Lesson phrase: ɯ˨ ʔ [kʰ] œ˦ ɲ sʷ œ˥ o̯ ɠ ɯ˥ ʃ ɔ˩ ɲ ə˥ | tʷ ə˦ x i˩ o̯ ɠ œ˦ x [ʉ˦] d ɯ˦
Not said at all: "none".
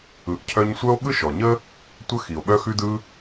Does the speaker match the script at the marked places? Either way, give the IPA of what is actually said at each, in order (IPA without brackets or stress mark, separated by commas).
cʰ, ʉ˦